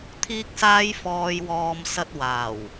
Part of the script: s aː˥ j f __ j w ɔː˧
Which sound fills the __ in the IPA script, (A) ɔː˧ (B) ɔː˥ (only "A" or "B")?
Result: A